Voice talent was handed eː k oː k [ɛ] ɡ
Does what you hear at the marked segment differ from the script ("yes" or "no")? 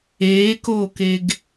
yes